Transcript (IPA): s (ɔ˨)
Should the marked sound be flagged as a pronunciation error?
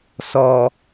no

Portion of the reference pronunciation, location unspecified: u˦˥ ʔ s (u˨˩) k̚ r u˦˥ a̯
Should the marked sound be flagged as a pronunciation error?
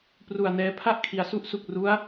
no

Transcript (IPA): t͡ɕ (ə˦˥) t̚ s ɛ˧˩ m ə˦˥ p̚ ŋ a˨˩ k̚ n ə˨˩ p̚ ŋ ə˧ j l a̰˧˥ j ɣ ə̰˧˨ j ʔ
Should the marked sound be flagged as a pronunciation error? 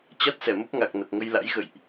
yes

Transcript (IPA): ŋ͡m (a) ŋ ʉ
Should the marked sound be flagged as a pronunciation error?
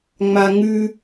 no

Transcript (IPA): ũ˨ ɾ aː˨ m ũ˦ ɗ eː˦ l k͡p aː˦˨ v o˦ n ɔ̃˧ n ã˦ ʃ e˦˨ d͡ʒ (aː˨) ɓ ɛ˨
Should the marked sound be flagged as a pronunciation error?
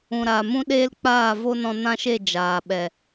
no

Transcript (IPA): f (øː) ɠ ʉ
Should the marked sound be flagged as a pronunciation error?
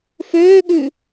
no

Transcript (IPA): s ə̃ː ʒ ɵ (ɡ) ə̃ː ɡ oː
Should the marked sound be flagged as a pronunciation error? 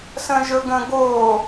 no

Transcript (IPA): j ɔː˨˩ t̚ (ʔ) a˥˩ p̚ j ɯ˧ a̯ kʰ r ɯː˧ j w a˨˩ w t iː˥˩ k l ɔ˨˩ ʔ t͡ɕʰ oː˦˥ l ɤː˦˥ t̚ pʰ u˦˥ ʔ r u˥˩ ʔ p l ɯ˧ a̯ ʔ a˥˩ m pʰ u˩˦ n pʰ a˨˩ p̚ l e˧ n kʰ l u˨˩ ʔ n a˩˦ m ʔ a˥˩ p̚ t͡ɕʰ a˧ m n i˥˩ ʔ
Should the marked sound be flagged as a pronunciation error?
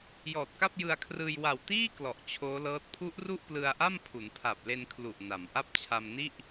yes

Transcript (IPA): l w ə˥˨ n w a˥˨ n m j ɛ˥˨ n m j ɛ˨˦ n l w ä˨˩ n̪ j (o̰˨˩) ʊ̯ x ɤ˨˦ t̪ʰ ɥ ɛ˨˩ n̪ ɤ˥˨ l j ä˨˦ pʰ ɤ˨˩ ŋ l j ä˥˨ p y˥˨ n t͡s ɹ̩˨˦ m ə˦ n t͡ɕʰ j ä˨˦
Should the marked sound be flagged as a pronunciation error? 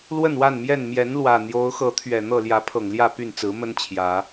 yes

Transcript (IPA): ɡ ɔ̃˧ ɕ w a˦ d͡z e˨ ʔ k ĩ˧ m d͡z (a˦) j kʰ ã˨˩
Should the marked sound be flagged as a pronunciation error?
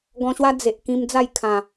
yes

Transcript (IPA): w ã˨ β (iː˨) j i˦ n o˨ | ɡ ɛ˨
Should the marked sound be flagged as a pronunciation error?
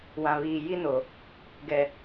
no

